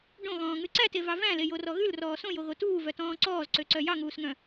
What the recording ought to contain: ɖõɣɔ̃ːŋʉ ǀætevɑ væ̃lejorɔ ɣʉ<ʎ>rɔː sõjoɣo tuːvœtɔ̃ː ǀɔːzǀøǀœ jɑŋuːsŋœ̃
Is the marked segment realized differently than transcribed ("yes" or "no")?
yes